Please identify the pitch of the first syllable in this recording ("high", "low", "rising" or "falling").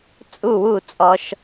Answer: falling